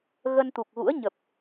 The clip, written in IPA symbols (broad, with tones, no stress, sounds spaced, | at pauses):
ɣ ə˧ n t̪ u˨˩ k̚ ɣ ṵ˧˥ ə̯ ɲ ə˨˩ p̚